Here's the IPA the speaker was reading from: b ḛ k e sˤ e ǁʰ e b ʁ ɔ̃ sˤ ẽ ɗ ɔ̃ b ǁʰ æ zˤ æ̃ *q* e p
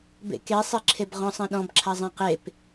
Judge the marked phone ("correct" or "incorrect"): correct